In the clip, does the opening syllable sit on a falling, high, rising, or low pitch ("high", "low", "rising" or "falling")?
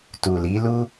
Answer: low